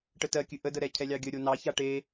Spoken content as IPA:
ʈ ə t ɜ kʲ ɨ ʔ ə d ə ɾ ɛ cʰ ɛ lʲ ɑ ɡʲ ə ɾʲ o n ɑ ç a ʈ e

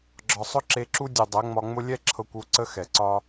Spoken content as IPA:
ɡ͡ǁ ɒ˨ sˤ ʊ˦ ǁ e˧ ǁ u˦ dʲ ʊ˨ dˤ ɛ˨˦ ŋ͡m ɒ˧ ŋ͡m ʊ˦ lʲ ɛ˦ ǁʰ ɤ˧ kʷ u˨˦ ǀ ə˦ x ɛ˨ ǀ ɒ˧

